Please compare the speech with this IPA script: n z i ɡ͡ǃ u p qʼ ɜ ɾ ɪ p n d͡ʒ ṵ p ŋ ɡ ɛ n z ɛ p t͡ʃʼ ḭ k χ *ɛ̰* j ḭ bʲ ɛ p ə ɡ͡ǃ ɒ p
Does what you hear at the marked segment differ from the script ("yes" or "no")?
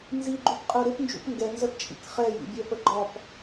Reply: yes